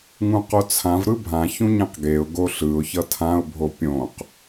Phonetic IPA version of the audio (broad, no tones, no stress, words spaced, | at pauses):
ŋũqot͡sʰãv ɾɯbʱã çũɲẽqɡeʊ̯ ɡoɬɯʊ̯ çʌtʰãʊ̯ bʱopʲõq